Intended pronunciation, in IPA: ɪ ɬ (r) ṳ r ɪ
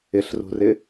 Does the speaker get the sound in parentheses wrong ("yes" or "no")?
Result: no